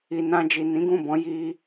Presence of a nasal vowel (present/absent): present